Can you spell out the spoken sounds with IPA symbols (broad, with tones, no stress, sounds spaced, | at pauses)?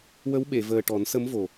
w ə˧˥ w ɓ e˨˩˨ v əː˨˩ ʈ ɔ˨˩˦ n s ə˧˥ m v o˨˩